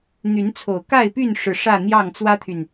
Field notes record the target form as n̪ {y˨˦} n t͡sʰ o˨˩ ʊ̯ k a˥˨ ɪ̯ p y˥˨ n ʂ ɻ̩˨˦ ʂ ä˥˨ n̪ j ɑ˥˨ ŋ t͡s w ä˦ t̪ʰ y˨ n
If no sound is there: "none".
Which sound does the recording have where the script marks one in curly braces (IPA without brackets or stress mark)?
y˨˦